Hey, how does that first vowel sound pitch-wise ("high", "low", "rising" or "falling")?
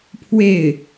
falling